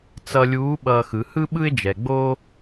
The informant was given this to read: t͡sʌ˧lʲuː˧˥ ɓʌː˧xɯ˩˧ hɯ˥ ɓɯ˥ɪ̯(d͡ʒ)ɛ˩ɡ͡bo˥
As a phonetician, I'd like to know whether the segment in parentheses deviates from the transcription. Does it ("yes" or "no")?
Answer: no